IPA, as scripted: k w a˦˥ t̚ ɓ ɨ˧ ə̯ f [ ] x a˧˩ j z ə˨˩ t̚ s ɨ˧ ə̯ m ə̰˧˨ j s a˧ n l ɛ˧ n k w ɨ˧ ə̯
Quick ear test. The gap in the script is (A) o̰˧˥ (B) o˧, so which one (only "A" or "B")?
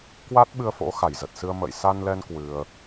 A